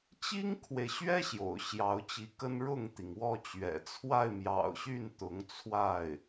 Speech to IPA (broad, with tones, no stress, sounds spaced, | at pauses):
t͡ɕ i˥ ŋ kʰ w e˨ ɪ̯ ɕ ɥ ɛ˥ ɕ j o̰˨˩ ʊ̯ ɕ j ɑ˧˥ ʊ̯ t͡ɕ i˧˥ k ə˥ n ɻ ʊ˥˩ ŋ t̪ i˩ ŋ w ɔ˥˩ t͡ɕ ɥ ɛ̰˨˩ t͡sʰ w a˥˩ ɪ̯ m j ɑ̰˨˩ ʊ̯ ɕ y˥˩ n t̪ ʊ˧˥ ŋ t͡sʰ w a˥˩ ɪ̯